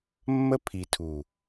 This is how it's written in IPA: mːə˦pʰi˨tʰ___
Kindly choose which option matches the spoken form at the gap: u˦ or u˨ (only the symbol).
u˨